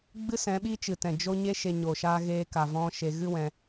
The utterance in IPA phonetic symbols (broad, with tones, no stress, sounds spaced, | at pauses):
ɡ͡b ɨ˦ s ɛ̃˨˦ ɓ i˦ t͡ʃ ɨ˨ t ɛ̃˨ d͡ʒ o˦ ɲ e˦ ʃ e˧ ɲ o˨ ʃ aː˦ ɣ eː˧ k a˨ v ɔ̃˦ ʃ e˧ ɣ ɨ˦ w ɛ̃˧